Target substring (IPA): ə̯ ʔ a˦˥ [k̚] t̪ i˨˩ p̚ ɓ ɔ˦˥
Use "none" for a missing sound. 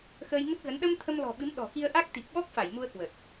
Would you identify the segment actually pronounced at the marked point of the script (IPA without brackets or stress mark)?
k̚